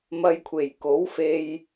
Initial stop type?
aspirated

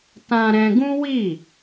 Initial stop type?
plain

